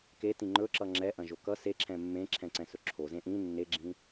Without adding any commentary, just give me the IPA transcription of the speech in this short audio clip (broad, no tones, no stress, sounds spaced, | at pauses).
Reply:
k e t ĩ ŋ͡ǃ ɵ ǁ ʌ ŋ͡ǁ ɛ ʔ ɐ̃ ʒ o k ʌ s e ǁʰ ɛ̃ mː ẽ ǁʰ ɛ̃ ǀ ɛ̃ s ɵ ǁʰ o z ẽ ʔ ĩ nː e ɡ͡ǁ ĩ